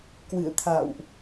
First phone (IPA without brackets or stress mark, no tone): k